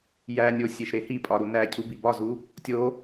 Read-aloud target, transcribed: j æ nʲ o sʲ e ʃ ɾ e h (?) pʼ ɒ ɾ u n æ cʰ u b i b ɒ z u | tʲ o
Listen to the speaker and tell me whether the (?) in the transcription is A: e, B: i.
B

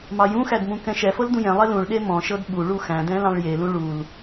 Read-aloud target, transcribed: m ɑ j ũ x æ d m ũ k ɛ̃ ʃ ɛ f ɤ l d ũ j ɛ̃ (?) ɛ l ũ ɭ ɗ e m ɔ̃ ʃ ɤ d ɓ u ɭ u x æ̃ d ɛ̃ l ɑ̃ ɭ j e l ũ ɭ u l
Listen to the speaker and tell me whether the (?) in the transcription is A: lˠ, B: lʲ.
A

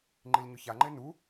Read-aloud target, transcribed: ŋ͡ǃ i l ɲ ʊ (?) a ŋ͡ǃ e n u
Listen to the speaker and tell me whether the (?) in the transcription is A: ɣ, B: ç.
B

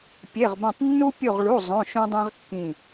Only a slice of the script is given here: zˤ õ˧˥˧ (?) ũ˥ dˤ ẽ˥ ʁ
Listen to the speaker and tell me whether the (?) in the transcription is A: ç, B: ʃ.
B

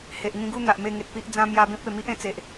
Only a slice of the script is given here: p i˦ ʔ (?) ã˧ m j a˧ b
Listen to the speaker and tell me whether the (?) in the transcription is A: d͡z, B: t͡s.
A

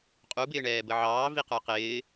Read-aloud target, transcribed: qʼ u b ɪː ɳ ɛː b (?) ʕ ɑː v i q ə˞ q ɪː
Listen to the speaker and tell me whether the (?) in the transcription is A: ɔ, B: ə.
B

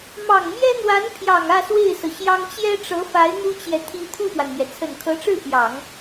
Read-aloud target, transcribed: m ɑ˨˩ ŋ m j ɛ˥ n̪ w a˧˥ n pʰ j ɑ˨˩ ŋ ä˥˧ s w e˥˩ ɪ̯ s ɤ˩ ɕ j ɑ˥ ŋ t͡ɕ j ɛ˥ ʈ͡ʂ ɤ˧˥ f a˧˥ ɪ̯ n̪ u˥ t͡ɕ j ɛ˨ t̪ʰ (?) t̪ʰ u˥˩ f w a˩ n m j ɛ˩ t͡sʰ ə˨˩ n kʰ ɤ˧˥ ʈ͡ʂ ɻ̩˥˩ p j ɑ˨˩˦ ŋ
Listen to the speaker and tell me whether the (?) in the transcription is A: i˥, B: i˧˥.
A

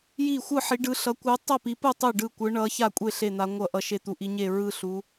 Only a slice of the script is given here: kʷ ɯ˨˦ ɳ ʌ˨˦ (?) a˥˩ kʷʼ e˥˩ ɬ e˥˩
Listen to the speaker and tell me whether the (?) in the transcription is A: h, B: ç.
B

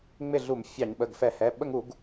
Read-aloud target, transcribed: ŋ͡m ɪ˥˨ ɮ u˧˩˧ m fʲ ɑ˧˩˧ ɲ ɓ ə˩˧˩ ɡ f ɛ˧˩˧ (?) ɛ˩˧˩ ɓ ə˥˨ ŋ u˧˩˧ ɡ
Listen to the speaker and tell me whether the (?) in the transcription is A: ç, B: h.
B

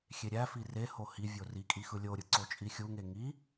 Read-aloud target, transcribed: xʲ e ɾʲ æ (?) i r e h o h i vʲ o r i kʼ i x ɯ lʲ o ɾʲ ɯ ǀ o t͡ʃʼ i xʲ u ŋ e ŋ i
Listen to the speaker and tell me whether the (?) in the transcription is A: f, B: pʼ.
A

